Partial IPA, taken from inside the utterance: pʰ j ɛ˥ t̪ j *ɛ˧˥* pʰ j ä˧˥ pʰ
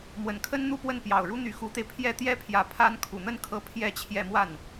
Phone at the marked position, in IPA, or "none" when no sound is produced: ɛ˥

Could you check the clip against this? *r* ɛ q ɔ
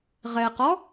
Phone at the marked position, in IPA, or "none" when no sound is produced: ʁ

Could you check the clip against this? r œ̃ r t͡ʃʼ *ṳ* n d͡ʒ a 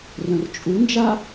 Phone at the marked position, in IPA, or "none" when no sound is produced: u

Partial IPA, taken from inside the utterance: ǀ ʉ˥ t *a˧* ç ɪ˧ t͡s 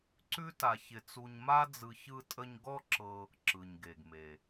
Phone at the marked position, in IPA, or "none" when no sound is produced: a˧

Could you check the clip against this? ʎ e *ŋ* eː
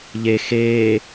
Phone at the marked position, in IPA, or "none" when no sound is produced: x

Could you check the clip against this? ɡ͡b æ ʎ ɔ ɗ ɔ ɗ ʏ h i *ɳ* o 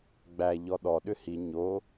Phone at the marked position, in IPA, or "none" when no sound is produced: ɲ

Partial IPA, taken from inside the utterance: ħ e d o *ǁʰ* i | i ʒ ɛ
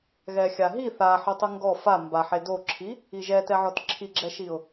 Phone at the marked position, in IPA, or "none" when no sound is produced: ǁʰ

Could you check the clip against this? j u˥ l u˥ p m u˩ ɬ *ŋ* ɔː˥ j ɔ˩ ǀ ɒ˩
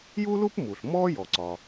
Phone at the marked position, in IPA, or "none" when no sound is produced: m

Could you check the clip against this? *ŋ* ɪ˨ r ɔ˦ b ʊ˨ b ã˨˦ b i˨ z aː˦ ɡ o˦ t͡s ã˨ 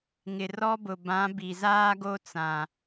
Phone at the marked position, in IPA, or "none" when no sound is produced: ŋ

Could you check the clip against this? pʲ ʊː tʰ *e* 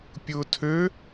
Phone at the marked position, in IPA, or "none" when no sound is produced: ø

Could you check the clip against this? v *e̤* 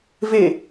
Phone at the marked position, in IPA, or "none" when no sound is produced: e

